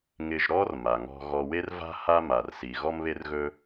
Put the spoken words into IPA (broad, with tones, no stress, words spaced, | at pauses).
ŋɪ˧ʒɾɔ˥r ma˩ŋɔ̤˧ ɣɔ˧ we˥rva̤˥ ha˥ma˩rsi˩ ɣɔ˥mβe˥rɣɵ˥